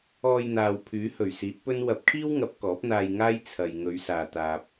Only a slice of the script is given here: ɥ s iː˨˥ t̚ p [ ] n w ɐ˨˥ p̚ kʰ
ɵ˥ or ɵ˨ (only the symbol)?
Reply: ɵ˥